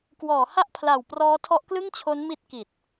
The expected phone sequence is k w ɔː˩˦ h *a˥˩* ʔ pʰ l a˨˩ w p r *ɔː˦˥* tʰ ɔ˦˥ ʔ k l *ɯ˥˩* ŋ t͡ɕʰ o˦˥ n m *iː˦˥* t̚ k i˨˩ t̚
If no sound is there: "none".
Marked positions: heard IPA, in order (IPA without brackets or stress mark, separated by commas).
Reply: a˥˩, ɔː˦˥, ɯ˥˩, i˦˥